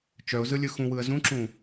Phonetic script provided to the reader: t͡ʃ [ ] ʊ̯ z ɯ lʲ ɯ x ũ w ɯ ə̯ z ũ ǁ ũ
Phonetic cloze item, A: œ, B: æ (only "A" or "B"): A